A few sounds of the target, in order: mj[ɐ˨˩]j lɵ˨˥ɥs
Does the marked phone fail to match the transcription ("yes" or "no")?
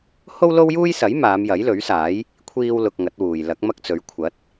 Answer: yes